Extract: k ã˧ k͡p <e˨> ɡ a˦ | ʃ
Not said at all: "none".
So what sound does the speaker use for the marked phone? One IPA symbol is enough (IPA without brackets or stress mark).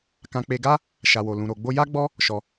e˧